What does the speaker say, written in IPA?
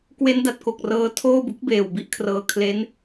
k w e˦˥ n d a˨˩ t̚ k o˨˩ k̚ r ɤː˧ tʰ oː˥˩ b u˦˥ k̚ b eː˨˩ w b i˥˩ ʔ kʰ r ɤː˧ kʰ l e˦˥ n

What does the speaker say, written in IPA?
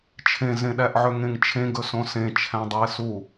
t͡ʃʰ ẽ z ẽ ɗ æ ʔ ʕ ø ŋ ẽ ŋ t͡ʃʰ ẽ ɡ ɵ s õ s ẽ t͡ʃʰ æ̃ dˤ u ɪ̯ s u

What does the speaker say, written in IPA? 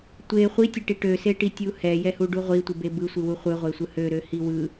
tʷ e χʷ i tʲ e ʈ i ʈ ø s e ʈ i tʲ u h ɛ j ɛ h u ɖ u ʁʷ i tʷ ɯ b e b ɯ sʷ ɯ w u χʷ ɯ ʁʷ e sʷ ɯ h ø ɾ ø h i w ɯ

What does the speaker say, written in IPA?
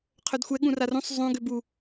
qʰ œ d xʷ ɛ ɠ ũ r a r ũ sˤ zˤ ũ ɡ ø b u

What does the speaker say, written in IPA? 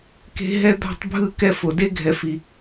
k e̤˦ ɦ ɛ˦ d̪ a̤˦˨ tˤ bʱ ɯ˦˨ k ɛ˧ f o˨ d e˧ ɡʱ ɛ˨ f i˨

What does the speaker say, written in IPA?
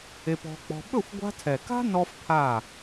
e˧ p ɔ̤˧ k͡p ɔ̤˧ ɓ ɵ˦˨ xʷ ɡʷ a̤˧ tʰ ɛ˨ k a̤˦ n ɔ˦ f pʰ a˦˨

